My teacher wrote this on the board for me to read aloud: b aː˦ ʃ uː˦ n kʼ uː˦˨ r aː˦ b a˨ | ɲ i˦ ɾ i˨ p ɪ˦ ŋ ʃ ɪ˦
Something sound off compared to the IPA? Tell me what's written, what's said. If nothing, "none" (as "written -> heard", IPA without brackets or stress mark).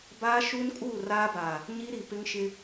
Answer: a˨ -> aː˨